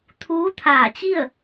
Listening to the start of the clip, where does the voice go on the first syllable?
rising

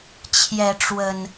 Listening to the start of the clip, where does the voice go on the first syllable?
rising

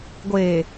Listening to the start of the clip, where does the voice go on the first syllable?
low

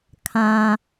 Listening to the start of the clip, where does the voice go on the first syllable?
low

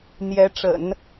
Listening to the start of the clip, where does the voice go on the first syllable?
rising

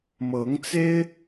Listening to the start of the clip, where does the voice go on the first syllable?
rising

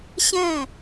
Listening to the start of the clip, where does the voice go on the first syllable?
falling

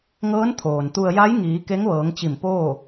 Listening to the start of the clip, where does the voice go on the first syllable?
rising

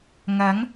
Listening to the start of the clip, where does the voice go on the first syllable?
rising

